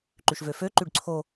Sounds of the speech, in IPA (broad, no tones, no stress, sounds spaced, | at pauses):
ǃ y ʃ v ø f ø ǃ y ɖ ǀʰ o